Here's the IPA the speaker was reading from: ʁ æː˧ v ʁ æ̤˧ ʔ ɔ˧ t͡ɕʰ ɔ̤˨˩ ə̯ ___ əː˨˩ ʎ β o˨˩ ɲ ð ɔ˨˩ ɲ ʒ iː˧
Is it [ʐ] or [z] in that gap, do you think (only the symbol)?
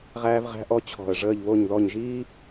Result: ʐ